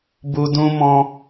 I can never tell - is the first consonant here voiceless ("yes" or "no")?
no